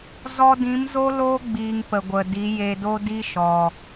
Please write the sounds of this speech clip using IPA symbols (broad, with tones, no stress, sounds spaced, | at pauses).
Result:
z ɔ˧ d ĩ˨˦ m z o˦ l oː˦ ɡ͡b iː˧ ŋ p ə˨ ɡʷ ə˨ d i˨˦ j e˧ d o˦ d i˦ ʃ ɔ˨